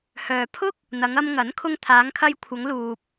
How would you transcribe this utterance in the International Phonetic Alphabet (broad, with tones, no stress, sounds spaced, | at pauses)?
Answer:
h œː˨ pʰ ʊ˥ k̚ | n̪ ɐ˨˧ ŋ ɐ˧ m ŋ ɐ˨˥ n kʰ ʊ˧ ŋ t̪ʰ aː˨˧ ŋ kʰ ɐ˧ j kʷʰ ɐ˨˧ ŋ l uː˨ p̚